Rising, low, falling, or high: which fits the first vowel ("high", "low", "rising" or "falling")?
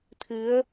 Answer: rising